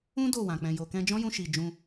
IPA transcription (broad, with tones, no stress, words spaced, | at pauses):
ũ˦ do˦˨wã˨ k͡pɛ̃˨jo˨ kɛ̃˧d͡ʒɔ̃˦jũ˧ʃi˨ d͡ʒũ˧